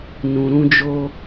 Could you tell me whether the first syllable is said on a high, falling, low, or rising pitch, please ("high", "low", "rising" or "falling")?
low